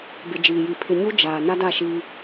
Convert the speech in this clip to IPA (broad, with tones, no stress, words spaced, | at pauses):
bɪ˨ d͡ʒiː˨ji˨ pʰɪ˨ɲu˦ d͡ʒaː˨ na˦da˦˨ʃiː˦